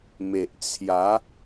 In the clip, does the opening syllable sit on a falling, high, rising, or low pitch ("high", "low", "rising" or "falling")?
low